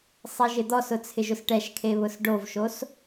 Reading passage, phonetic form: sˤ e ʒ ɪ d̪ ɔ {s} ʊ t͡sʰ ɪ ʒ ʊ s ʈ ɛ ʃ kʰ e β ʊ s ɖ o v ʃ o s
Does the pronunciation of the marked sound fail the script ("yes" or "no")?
no